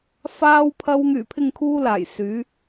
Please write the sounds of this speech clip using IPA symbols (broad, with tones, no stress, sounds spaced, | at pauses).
f aː˧ w pʰ ɐ˧ w ŋ yː˨˩ pʰ ɪ˨ ŋ kʰ uː˧ l aː˨˩ j s yː˨˧